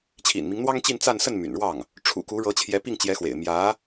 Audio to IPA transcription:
t͡ɕʰ ḭ˨˩ n m i˦ ŋ n̪ w ɑ˥ ŋ t͡ɕ i˥˧ n t͡s a˥˧ n s ə˥˩ n m y̰˨˩ n ɻ w ɑ˥˩ ŋ | ʈ͡ʂʰ ṵ˨˩ k u˧˥ ɻ ɤ˧˥ t͡ɕʰ j ɛ˧˥ p i˥˩ ŋ t͡ɕ j ɛ˧˥ x w ḛ˨˩ ɪ̯ m j ä˧˥

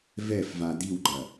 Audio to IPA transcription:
v ɛ f v a d i w ɡ͡ǃ ɐ

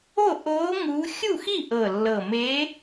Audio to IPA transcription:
o˥˨ ʔ oː˧˥ ŋ uː˧˥ xʲ u˥˨ x i˥˨ ʔ ɤ˨˩ lː ɤ˨˩ m eː˧˥

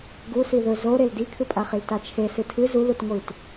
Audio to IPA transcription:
ɡ u s i ð ɵ z o ɾ e l d i kʰ ɨ pʼ a χ i l t a t͡ʃʰ e s ɨ tʰ ɨ z u l u t ŋʷ i t

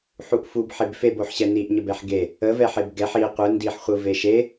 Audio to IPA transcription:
ħ u ʔ f u b ħ e b f e b o ħ ɕ ɛ n i ʔ ɲ ə b ɛ ħ ɡ e | ə v ɛ ħ e b ɡ ɛ ħ i qʷ ɯ n d i ħ χʷ ɯ v e ʃ e

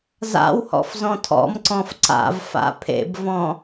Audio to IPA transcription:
z a̰ w h ɔ̰ f z ɔ̃ tʰ ɔ̰ m ǀ ɔ̃ f ǀ a̰ v f a̰ pʰ ḛ b v ɔ̃

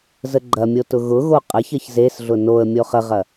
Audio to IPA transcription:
z ə ɡ͡ǃ ɐ mʲ o t ʊ ɣ ʊ ɣ o qʼ ɐ ç ɐ ç z e s ɮ ʊ n o ə̯ mʲ o χ ə ʁ ɐ

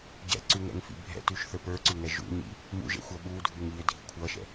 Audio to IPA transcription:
ɟ ɛ̰ ǀ ʉ ŋ ɛ̰ ŋ f ḭ bʱ ɛ̰ t ʉ ʃ θ ə˞ p ə˞ ǀ ʉ ŋ ɛ ʒ ṵ ɲ ḭ | m ṵ ʒ ɛ̰ xʷ ʌ ɓ u dʱ ʉ ŋ ʎ ʏ dʱ i kʷʰ ʌ ʃ ɛ̰

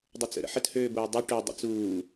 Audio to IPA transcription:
dˤ ʊ t͡s ə̰ ɾ ə̰ ħ ə t h øː b oː dˤ u ʈ ø dˤ ə̰ t͡s uː

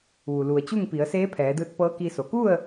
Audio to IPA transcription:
ʋ u˩ l u˩ ə̯ t͡ɕ u˥˨ ŋ p i˩˧ ə̯ s eː˧˥ pʰ ɛː˩˧ d ɯː˧ t̚ p ɤː˧˥ k i˧ s o˩ k u˥˨ ə̯

